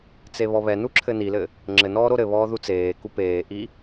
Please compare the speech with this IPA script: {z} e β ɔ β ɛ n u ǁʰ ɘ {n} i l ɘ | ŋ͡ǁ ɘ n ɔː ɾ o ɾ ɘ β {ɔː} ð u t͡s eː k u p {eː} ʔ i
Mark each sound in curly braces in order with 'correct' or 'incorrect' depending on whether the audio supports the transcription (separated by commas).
incorrect, correct, correct, correct